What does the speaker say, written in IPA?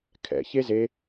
kʰ ɛ̰ ç e z e

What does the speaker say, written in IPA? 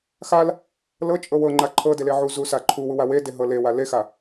x a l | l ɤ t͡ʃʼ ɤ w ɤ ŋ͡ǃ a ǃʰ ɤ d e l e ʕ u z u s a ǃʰ u w u w a w e d e ɦ ɤ l e w a l e x a

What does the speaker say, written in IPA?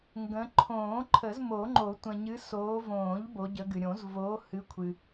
ŋ ɡ ə̃˨˦ ǃʰ õː˨˩˦ ǃʰ ə˨˩˦ z m o˨˩˦ ŋ͡ǃ o˨˩˦ tʷ ə̃˨ ɲ ɨ˨˦ s oː˨˦ v õː˨˩˦ ʎ b o˨˦ ɟ ə˨˦ ɡ ɨ˨ ɾʲ õ˨˩˦ z v oː˨˦ h ɨ˨˦ kʷʰ ɨ˨

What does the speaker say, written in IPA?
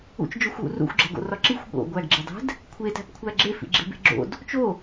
ṵ t͡ʃ d͡ʒ o xʷ w ṵ r ṵ xʷ ɡ͡ǁ æ̤ ɡ o̰ r ɒ ǁ i xʷ ɠ o̰ ɡʷ æ ɡ ɡ͡ǁ i dˤ æ̤ d | kʷʰ e t æ̤ p kʷʰ æ ɡ͡ǁ e f ḭ ɡ͡ǁ e̤ b e̤ ɡ͡ǁ o̰ d | t͡ʃ o

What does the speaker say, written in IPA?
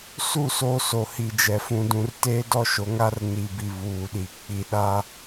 s u˦˨ s o˦ s o˨ h i˨ d͡ʒ ɛ˨ f ũ˨ d ũ˨ r t e˦ d ɔ˦ ʃ o˨˦ ŋ a˦ r n i˨ b i˨ β uː˨ ɗ i˨ k͡p i˨ ɗ a˦

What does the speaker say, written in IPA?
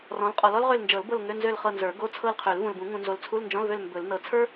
r ɔ̃˨˦ l qʼ ɔ˨ l ɔ˥ l ʁ ø˦˨ l n d͡ʒ ɤ˨˩˦ l b ɤ˦˨ l ŋ ø˧˥˧ n z ø˦˨ l χ ɤ˦˨ n z ə˞˨˩˦ ɡ o˧˥˧ t͡sʰ ɤ˦˨ l qʰ ø˨˩˦ l v ũ˨ l b ũ˨˩˦ ŋ ũ˨ n z o˨ l t͡sʰ u˧˥˧ l n d͡ʒ ɔ̃˧˥˧ l v ø˦˨ l m b ɵ˨˩˦ l n ɤ˨ t͡sʰ ə˞˥

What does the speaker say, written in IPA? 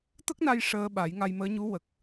t̪ ə˦˥ k̚ n a˧ j ʂ əː˧ ɓ a˨˩˦ j ŋ a˧ j m əː˧˥ ɲ u˧˥ w ə˨˩ k̚

